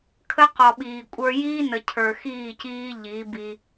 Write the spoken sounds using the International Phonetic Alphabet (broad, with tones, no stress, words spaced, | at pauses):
kʰə˦qɔ˨ɓiː˨kʷʼə˞˦ jiː˦ nə˨cʰə˞˨xiː˦˨ciː˦ ʎi˨˦bi˦